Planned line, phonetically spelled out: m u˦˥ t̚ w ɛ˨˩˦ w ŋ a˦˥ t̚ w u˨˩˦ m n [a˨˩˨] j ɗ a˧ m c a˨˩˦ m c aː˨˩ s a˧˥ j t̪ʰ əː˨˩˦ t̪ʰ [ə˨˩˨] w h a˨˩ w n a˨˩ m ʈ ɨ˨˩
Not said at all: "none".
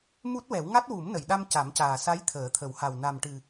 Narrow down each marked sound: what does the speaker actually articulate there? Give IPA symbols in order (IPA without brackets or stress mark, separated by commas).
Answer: ə˨˩˨, ə˨˩˦